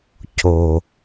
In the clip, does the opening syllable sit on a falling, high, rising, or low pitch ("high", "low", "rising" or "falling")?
low